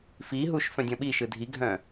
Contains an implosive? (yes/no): yes